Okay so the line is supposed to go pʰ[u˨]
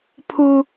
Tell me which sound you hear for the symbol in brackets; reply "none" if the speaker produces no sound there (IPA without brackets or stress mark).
u˨